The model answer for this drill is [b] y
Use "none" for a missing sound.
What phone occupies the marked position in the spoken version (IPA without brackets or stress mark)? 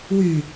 w